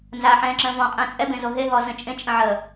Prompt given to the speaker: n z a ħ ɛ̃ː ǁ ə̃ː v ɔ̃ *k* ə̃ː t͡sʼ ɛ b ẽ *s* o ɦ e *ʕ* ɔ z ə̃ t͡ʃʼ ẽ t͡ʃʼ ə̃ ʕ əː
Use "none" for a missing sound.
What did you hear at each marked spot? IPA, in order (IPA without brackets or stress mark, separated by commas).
qʼ, z, ɦ